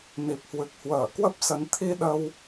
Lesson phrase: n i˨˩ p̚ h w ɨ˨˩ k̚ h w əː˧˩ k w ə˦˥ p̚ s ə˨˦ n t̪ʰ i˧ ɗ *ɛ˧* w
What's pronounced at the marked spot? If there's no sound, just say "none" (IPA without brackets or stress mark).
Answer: ə˧